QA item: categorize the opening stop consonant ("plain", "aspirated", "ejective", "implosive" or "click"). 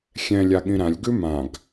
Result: implosive